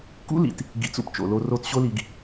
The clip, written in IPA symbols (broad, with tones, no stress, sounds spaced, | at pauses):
k ṵ˦ l ḭ˨ t | ɡ ḭ˧ t͡s ṵ˦ p t͡ʃ o̰˨ l o˧ r o˧ t ɕ o˦ l i˧ ɡ